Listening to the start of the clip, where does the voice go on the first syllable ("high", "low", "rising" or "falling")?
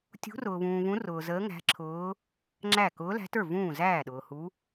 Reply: rising